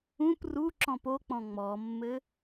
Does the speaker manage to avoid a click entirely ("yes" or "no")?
no